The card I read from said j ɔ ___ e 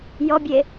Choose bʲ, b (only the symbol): bʲ